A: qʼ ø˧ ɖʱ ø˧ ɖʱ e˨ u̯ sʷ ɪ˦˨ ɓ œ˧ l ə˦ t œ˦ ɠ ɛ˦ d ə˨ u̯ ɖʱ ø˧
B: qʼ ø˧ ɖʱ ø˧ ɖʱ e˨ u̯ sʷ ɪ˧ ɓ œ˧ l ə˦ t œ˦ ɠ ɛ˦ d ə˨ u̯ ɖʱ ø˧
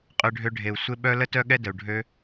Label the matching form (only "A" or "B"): B